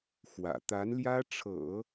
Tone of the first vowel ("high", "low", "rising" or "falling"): low